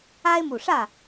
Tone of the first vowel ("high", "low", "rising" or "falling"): high